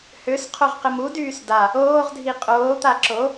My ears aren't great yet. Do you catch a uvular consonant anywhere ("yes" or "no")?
yes